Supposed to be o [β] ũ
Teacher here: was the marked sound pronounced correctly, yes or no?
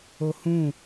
no